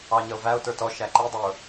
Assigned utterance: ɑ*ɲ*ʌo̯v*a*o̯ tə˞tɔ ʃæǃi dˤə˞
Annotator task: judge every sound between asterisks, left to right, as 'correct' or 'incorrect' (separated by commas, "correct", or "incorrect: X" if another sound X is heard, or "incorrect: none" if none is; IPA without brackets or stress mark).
correct, incorrect: æ